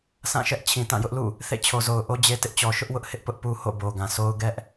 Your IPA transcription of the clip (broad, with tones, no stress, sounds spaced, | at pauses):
sʰ ã˦˨ ʃ ɛ˦ ʔ t͡ɕʰ ĩ˨ t ã˦˨ j ʊ˦ ʔ l ṵ˦˨ | θ ḛ˦˨ t͡ɕʰ o˨ z o˨ ʊ̯ ʔ o˦ d͡ʑ e˦ t ɪ˦ ʔ t͡ɕ ɔ˨ ʃ ʊ˦ ʔ w ʊ˦ ʔ h ɪ˦ ʔ p ʊ˦ ʔ p u˦ h o̰˦˨ b o˨ ɡ ã˨ s o˦ ʊ̯ ɡ ɛ˦ ʔ